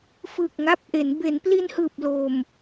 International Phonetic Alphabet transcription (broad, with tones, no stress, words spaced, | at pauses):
fɯː˨˩k̚ŋa˦˥p̚ʔe˩˦n be˩˦npli˧nhɯː˨˩p̚ lo˨˩m